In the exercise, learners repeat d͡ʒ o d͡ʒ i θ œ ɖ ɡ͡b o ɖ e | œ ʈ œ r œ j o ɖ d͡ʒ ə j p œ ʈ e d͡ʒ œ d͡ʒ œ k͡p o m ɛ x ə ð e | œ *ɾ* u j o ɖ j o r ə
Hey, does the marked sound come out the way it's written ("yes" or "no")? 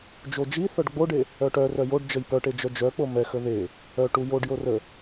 no